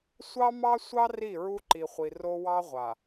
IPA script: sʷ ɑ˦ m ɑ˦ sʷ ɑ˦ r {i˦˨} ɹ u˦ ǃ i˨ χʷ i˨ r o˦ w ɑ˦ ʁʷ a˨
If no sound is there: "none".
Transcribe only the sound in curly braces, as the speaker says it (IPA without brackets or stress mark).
i˦˨